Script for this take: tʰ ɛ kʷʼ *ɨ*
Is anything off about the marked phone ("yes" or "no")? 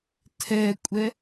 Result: yes